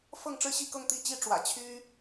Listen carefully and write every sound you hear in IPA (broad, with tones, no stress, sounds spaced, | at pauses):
f ɤ˥˧ ŋ ʈ͡ʂ ɻ̩˥˧ ɕ i˥˧ k ɤ˥˧ ŋ t̪ i˥˩ t͡ɕ i˥ ʈ͡ʂ w ä̰˨˩ t͡ɕʰ y˥